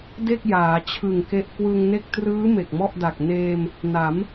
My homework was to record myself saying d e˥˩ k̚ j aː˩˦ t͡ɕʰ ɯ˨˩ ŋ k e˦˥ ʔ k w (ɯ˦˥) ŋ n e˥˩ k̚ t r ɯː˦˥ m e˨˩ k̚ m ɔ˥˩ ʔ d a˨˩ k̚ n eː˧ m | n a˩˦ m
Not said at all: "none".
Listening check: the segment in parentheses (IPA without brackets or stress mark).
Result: ɯ˧